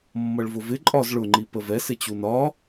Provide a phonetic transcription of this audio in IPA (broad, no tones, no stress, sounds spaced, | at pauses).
mː ʌ ɭ v ʊ v ɪ ǃʼ ɒ z ɭ ʊ ŋ͡ǃ i p ə v ɛ s ɪ t͡ɕ u n ɒ